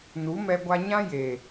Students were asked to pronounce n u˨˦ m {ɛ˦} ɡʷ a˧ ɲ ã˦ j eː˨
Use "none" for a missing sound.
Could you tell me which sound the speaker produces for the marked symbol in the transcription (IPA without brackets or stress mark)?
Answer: ɛ˧